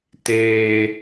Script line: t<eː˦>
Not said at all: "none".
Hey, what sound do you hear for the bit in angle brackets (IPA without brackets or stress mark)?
eː˦